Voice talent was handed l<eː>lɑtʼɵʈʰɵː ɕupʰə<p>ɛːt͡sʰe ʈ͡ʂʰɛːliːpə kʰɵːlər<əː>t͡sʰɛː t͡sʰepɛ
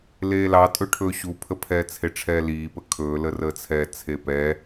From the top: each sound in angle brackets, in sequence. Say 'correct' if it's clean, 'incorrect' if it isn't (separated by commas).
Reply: correct, incorrect, correct